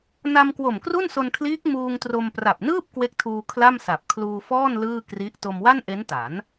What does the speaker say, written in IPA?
n a˧ m k w o˨˩ m k r u˥˩ n s o˧ n kʰ l iː˦˥ k̚ m uː˧ ŋ t r o˧ m p r a˨˩ p̚ n ɯː˥˩ p̚ k w e˦˥ k̚ tʰ uː˧ kʰ l a˥˩ m s a˨˩ p̚ kʰ l uː˧ f ɔː˥˩ n l ɯː˥˩ k r i˦˥ ʔ t o˧ m w a˥˩ n ʔ e˦˥ n t a˩˦ n

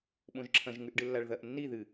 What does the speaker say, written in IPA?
ɓ õ ʒ ǁʰ ɐ̃ ʒ ŋ ʉ ʔ ɖ ɨ lː a ɭ ð ɐ ʔ nː i ð ɨ

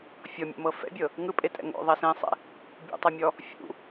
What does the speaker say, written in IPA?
fʲ ɔ mʲ o̰ m ɤ f ɛ̰ bʲ ɤ | ŋ ɯ pʼ e tʼ ɛ̰ ŋ o̰ ðˤ ɛ s ẽ sˤ ɛ̰ | bʲ ṵ tˤ ɤ mʲ ɔ | fʲ ṵ

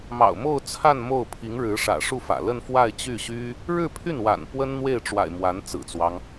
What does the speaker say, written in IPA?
m ɑ̰˨˩ ʊ̯ m o˥˧ ʊ̯ t͡sʰ a˥˧ n m o˥˩ ʊ̯ pʰ i˧˥ ŋ ɻ ɻ̩˧˥ ʂ ä̰˨˩ ʂ u˥˩ f ä̰˨˩ l ə˥˧ n f w a˥˧ ɪ̯ t͡ɕ y˥˩ ɕ y˥ | ɻ ɻ̩˥˧ pʰ y˥˩ n w a̰˨˩ n p w ə˥ n n̪ w e˥˩ ɪ̯ ʈ͡ʂ w a̰˨˩ ɪ̯ m w a˧˥ n t͡s ɹ̩˨˩ t͡s w ɑ˦ ŋ

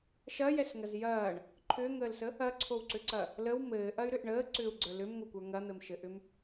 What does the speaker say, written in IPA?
ʃ ɐ j ɛ s ŋ ɐ z j ɐː ɳ | ǃʰ ʏː ŋ əː l s ə | ɐ ǀʰ o w ǀ ʏ ǀ ɐ | l ə w m ɘː ʔ ɐ y̯ ɾ ʏ ʔ ɳ əː ǀ ʏː u̯ ɡ͡ǀ ə˞ l ʏ m ŋʷ ɘ kʷ ə˞ ŋ ɐ n̪ ɘ m ʃ ɘ ʔ ʏ m

